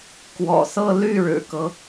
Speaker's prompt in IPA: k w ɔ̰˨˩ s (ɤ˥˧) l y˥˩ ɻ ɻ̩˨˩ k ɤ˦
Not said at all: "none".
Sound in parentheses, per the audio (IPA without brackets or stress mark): ɤ˥˧